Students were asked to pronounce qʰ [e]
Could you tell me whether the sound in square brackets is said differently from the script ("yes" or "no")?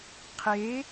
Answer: no